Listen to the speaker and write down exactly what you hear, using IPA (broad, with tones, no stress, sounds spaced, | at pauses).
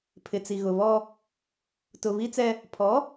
pʰ ɪ˨ t͡s i˨ ɣ ʊ˨ β ɔ˦ | t ʊ˨ β i˦ t͡s ɛ˦ | pʰ ɔ˨˦